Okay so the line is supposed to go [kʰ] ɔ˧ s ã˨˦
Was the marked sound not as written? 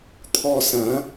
yes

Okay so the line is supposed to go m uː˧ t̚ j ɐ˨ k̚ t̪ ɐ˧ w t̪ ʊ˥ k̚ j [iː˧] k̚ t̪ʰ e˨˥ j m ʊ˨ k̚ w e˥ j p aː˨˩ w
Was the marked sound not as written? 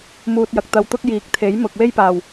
yes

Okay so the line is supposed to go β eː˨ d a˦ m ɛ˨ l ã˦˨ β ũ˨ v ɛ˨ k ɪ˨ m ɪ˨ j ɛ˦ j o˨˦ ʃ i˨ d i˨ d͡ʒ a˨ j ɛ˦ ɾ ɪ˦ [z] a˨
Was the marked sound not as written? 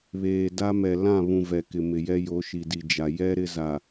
no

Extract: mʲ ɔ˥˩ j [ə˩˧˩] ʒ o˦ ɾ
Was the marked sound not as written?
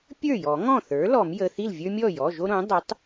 yes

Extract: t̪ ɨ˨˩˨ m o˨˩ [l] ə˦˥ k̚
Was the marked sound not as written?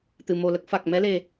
no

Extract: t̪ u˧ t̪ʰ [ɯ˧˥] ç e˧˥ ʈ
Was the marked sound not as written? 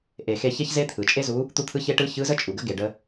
no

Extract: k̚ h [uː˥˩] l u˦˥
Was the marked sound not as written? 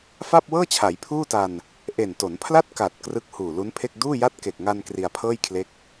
yes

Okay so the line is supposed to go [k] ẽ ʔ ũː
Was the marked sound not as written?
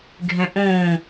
yes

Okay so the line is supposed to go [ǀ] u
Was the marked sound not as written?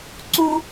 no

